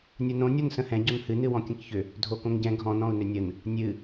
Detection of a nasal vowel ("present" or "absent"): present